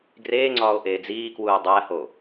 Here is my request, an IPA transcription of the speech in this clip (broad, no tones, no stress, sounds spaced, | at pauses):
ɡ r eː ŋ͡ǀ ɒː o̯ ʔ eː d͡z iː k w uː dˤ æ h o